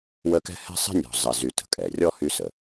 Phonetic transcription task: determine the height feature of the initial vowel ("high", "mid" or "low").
mid